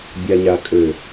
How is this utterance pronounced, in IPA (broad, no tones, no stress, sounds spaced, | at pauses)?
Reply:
bʲ a ɲ a kʼ ø